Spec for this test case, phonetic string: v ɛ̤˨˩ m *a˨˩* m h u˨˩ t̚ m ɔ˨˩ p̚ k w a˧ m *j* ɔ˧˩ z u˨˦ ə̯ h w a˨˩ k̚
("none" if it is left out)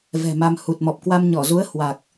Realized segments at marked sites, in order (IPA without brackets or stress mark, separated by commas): a˧, ɲ